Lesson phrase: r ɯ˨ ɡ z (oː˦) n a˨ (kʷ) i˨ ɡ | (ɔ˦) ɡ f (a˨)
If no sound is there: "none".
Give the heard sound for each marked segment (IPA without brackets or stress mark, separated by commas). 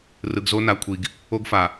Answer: o˦, kʷʰ, o˦, a˨